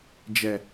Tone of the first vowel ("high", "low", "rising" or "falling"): low